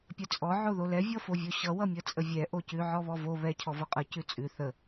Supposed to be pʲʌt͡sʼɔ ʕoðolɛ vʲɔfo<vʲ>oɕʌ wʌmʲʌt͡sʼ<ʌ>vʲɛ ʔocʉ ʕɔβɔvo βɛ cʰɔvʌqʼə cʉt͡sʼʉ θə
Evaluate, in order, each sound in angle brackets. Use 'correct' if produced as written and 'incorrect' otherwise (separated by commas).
correct, incorrect